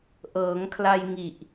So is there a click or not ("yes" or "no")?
no